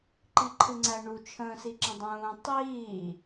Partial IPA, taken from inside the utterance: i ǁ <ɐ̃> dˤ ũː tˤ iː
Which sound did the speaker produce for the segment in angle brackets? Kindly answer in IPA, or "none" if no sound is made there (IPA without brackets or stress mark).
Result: ə̃